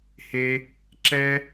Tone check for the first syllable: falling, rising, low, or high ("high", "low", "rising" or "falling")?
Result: high